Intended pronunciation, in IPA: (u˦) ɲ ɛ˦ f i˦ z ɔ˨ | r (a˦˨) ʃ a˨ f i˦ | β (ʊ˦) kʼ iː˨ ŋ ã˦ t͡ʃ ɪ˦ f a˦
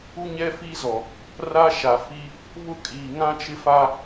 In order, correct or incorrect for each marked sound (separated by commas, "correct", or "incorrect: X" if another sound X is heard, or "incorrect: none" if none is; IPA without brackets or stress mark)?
correct, incorrect: a˦, correct